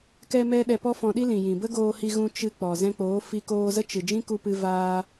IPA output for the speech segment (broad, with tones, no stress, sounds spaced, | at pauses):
k ɛ˦ m ɛ˦ ɗ ɛ˧ p ɔ˦ f ɔ̃˧ ɗ i˦ l ĩ˨ j ĩ˨ b ə˦ ɡ oː˧ h i˧ ɣ ũ˧ t͡ʃ ɨ˧ k͡p ɔ˨ z ɛ̃˧ k͡p oː˨˦ f i˧ k oː˧ z ə˦ t͡ʃ ɨ˨ d͡ʒ ĩ˦ k u˧ p ɨ˦ v aː˦